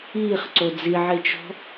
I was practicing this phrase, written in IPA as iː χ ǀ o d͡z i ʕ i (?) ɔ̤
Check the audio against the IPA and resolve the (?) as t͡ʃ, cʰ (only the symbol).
t͡ʃ